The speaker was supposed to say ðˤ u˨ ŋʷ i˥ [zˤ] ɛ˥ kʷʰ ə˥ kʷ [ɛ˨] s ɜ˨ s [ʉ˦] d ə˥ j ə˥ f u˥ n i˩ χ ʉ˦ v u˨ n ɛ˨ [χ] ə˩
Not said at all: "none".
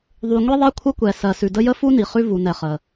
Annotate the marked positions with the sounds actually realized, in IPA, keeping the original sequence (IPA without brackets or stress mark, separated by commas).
ðˤ, ɛ˨, ʉ˨, χ